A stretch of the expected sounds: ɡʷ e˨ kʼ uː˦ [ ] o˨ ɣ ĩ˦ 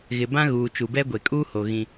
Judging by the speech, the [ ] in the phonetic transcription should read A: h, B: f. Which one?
A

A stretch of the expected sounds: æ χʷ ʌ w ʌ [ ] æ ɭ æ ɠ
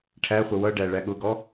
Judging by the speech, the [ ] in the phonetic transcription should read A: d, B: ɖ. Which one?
B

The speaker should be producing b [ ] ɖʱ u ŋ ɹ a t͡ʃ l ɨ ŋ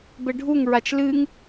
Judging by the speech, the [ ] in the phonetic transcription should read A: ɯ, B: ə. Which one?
B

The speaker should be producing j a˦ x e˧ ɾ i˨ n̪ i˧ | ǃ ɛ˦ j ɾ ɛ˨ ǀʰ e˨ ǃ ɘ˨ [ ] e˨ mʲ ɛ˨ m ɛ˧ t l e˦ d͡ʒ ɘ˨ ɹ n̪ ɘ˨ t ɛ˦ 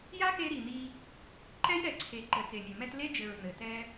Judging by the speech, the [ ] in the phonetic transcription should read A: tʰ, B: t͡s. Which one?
B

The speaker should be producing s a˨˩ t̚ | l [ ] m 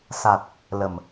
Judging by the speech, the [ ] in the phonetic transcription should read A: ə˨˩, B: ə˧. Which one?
A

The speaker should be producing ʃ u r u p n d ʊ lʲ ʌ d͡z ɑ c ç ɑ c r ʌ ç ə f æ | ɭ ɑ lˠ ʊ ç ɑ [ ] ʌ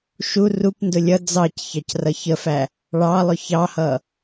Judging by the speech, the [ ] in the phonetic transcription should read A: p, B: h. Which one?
B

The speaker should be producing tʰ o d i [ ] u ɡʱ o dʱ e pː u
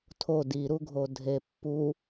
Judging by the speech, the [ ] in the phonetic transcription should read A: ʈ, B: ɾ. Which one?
B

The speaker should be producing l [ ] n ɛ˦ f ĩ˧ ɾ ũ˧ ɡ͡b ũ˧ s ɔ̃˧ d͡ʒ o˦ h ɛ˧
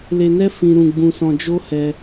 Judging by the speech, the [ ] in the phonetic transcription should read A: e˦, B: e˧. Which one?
B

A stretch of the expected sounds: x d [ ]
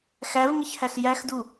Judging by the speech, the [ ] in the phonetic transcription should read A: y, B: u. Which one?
B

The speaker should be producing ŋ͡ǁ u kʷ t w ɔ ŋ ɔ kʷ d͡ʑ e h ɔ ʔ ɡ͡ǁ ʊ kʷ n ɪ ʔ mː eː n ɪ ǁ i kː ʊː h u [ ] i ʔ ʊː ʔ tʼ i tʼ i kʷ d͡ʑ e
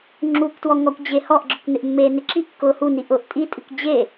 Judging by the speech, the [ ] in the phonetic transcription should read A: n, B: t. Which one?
A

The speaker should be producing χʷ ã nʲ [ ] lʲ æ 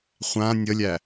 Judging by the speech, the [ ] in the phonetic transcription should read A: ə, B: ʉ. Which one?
A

